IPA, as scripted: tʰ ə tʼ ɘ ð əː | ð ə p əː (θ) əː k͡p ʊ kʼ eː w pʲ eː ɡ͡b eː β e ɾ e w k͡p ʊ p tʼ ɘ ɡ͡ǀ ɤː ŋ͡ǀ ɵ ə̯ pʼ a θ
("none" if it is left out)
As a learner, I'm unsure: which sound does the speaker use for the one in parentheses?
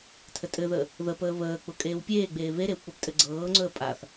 β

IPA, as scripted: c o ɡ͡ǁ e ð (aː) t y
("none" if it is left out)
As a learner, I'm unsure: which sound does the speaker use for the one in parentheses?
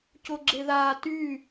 aː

